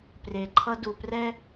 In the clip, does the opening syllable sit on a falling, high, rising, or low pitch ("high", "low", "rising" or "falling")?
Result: low